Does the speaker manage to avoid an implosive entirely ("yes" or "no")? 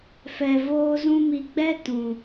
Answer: yes